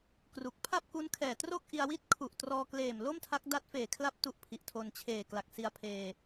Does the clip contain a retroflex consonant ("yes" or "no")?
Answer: no